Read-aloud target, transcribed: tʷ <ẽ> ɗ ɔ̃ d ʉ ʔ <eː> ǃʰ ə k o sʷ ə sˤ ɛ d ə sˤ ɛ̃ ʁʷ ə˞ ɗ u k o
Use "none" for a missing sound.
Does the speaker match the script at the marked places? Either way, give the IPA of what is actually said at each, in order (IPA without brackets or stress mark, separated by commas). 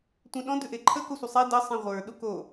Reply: ẽ, e